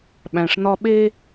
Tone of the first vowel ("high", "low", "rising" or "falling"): low